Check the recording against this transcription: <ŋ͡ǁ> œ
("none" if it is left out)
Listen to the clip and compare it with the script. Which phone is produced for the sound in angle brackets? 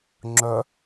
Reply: ŋ͡ǁ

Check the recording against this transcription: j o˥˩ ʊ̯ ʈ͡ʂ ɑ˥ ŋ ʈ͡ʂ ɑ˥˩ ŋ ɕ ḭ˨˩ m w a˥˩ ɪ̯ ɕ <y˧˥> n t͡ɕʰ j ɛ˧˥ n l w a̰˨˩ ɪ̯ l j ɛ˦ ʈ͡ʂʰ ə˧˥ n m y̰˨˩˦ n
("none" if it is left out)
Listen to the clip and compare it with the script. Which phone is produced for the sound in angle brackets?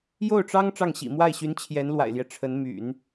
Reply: y˧˥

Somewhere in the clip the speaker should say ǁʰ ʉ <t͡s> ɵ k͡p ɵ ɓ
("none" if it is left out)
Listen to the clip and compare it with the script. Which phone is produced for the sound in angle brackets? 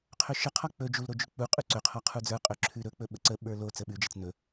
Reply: ɾ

